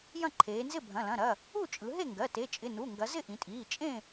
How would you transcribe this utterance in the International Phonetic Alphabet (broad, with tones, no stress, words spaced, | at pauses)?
jɐ̃˥˨ǃʰeː˩˧nzɪ˥˨ bʱɐ̃˩˧˩lɐ̃˩˧˩ɾɐ˩˧˩ | u˥˨t͡ʃʼɯ˩˧ɦe˥˨ŋɡɜ˩˧˩ te˩˧˩t͡ʃʼɪ˩˧˩ nu˩˧˩ŋɡɐ˩˧ zɪ˥˨ʔĩ˩˧tʼiː˩˧˩ t͡ʃʼẽ˥˨